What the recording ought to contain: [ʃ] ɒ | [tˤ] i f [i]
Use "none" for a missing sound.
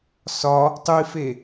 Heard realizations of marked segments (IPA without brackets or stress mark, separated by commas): s, tˤ, e